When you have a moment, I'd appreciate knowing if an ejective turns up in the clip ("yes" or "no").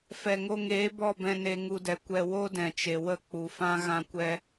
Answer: no